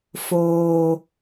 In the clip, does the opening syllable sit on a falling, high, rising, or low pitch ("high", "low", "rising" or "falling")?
high